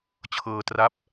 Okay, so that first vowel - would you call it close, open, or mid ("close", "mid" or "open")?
mid